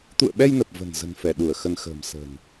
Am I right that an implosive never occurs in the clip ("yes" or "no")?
no